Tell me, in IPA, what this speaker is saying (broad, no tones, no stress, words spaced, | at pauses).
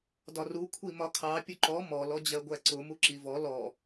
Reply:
dɒru kʷʰimɒkʰɑ pʲʊǃɔ mɔ lɔd͡ʑɜɡʷæǀʊ muǁivɔ lɔ